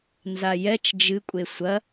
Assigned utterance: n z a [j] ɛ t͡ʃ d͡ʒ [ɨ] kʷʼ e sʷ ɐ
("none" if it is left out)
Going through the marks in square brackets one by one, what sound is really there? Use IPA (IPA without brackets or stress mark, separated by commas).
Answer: j, ɨ